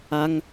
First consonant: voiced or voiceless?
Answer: voiced